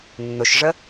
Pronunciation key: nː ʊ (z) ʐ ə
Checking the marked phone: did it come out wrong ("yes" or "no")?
yes